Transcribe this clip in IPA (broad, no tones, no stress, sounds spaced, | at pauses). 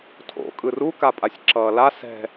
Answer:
tʰ o̰ kʼ ɯ r u k a pʼ a sʲ ǁ ʌː l a s ɛ̤